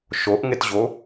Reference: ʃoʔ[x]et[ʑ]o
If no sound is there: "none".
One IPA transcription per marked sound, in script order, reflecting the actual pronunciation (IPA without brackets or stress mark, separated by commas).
ŋ, ʑ